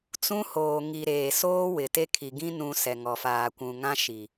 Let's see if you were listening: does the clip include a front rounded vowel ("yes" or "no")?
no